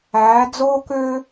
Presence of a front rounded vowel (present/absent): present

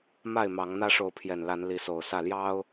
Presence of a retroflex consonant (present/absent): present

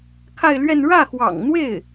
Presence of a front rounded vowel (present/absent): absent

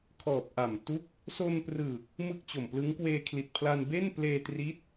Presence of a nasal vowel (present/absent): absent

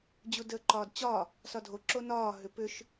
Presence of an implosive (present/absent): absent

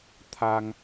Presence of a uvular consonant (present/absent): absent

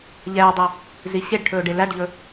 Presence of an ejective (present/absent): absent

